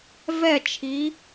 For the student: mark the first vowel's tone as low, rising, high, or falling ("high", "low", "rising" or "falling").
falling